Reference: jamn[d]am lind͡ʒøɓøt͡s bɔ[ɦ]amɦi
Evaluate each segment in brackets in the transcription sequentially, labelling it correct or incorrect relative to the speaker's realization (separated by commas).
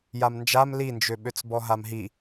incorrect, correct